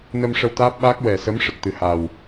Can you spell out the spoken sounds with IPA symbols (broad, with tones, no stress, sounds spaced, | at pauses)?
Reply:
n ə˧ m ʂ ə˧ w t̪ aː˦˥ p̚ ɓ aː˦˥ k̚ w ɛ˨˩ s ə˧˥ m ʂ ə˨˩ k̚ t̪ ɨ˨˩ h a˨˩ w